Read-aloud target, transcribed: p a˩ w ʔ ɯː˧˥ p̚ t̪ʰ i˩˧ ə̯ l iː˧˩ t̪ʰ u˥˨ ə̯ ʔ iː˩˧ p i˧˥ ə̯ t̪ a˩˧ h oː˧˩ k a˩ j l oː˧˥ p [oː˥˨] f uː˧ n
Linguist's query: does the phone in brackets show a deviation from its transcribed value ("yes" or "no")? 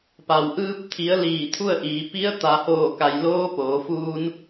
yes